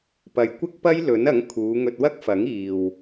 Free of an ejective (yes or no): yes